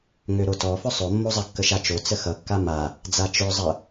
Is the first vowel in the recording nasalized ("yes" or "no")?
no